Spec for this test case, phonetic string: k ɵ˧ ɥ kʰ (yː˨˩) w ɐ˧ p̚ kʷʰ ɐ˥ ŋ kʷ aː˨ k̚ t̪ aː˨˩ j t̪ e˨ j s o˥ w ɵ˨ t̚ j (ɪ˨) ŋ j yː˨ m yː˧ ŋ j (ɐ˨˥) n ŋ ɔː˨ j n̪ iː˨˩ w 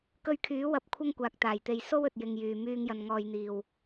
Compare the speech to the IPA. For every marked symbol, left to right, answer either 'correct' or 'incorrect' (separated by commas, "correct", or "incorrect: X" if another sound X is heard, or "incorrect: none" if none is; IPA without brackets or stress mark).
incorrect: yː˨˥, correct, incorrect: ɐ˨